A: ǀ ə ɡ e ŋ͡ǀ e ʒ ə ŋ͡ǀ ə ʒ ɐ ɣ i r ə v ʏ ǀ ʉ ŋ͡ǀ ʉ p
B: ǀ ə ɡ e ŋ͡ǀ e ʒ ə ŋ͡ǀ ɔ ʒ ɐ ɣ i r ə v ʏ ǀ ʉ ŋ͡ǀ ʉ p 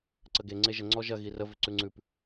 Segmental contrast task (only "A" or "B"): B